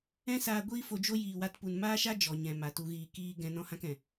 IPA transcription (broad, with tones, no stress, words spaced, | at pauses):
ɛ̃˦saː˧ ɡʷiː˦ fo˧d͡ʒo˦ jiː˧wa˦tpu˧n maː˦ʃa˦ d͡ʒɔ˨ɲɛ̃˨ ma˧tu˦ɣiː˦ kiː˦ ɡɛ̃˦ nɔ̃˦hã˦kɛ̃˨